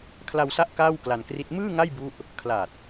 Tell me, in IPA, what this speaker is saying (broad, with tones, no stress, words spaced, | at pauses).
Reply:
kʰla˧wsa˦˥ʔ kaː˥˩wkla˧nkri˦˥t̚ mɯː˥˩ ŋa˥˩j bu˦˥ʔ | kʰla˨˩t̚